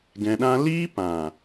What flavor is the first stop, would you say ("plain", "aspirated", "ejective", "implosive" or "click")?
plain